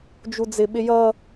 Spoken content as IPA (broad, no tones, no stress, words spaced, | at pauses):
d͡ʒud͡zɪ ɓɪjʌ